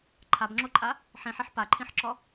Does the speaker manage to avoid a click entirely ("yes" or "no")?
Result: no